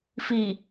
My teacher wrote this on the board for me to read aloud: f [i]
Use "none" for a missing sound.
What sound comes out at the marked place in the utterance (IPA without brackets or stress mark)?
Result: i